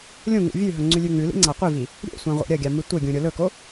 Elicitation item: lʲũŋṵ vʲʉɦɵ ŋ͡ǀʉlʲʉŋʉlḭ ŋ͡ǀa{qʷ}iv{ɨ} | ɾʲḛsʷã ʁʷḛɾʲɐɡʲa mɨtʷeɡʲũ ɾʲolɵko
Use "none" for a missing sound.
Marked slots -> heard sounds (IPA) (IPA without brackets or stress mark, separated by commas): qʷ, i